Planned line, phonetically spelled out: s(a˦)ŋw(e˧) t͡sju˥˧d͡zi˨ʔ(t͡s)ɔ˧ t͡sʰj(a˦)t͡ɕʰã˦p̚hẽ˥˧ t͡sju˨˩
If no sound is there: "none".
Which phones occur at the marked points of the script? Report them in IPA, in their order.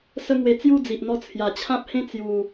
ə˦, e˧, n̪, a˨˩

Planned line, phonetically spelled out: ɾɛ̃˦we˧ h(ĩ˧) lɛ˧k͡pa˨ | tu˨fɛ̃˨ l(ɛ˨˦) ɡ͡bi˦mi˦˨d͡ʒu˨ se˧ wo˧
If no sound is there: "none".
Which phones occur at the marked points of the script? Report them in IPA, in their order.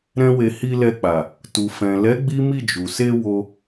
i˧, ɛ˨˦

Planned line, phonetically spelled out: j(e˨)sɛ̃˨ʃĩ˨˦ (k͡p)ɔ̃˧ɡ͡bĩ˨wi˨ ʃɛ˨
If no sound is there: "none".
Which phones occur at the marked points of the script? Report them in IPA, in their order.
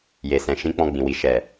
e˨, k͡p

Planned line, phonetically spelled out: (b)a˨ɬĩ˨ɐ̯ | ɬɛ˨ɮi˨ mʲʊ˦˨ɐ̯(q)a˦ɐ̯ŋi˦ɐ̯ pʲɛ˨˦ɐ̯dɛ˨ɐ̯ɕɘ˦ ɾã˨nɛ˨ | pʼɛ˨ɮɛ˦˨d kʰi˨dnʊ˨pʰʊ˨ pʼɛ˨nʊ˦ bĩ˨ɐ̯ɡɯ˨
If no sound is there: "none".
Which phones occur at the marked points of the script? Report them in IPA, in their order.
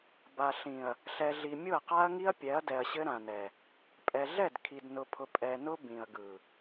b, q

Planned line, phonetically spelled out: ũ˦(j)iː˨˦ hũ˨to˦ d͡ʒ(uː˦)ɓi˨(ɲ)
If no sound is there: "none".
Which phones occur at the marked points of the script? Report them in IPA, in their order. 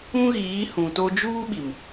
ɣ, uː˦, m

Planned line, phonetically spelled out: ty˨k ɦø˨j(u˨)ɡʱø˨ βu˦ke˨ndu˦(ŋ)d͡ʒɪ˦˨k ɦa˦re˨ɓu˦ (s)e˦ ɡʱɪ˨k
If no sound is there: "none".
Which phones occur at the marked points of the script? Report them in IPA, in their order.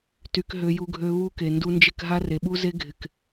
u˨, n, z

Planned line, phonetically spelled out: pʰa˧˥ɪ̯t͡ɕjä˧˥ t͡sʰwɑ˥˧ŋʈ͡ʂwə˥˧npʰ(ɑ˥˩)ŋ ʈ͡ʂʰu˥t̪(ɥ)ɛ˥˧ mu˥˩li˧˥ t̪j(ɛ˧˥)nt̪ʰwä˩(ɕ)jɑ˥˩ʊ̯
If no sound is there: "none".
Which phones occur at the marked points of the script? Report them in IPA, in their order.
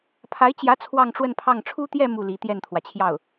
ɑ˥˩, j, ɛ˥˩, t͡ɕʰ

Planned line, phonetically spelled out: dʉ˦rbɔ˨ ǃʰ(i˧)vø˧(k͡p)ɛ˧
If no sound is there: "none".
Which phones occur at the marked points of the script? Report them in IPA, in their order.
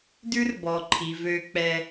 i˨, k͡p

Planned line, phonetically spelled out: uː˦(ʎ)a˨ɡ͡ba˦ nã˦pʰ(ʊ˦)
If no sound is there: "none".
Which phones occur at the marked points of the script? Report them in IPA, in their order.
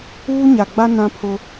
ɲ, ʊ˦

